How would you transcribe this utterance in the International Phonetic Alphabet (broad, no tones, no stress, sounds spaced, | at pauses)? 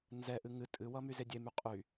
n z ɛ ʔ ɨ ŋ ɨ tʼ ɨ w ʌ m y z e dʲ e m y qʼ y